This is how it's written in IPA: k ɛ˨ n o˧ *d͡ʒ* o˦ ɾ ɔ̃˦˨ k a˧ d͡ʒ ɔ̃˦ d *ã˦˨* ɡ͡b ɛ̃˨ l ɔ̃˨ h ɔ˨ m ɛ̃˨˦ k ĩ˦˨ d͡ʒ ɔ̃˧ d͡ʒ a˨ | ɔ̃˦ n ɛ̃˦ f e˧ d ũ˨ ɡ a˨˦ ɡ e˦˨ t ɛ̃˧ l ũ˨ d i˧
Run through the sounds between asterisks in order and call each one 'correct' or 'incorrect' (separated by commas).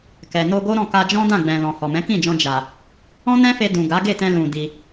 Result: incorrect, correct